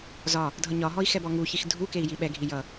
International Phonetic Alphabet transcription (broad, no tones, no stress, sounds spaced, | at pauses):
z ɒ | dʱ ʌ ɲ ɒ ɦ ɔ i̯ x ɛ b ɔ ŋ u ç i x dʱ u k e i̯ j i ɓ ɛ ɡʱ i j ʌ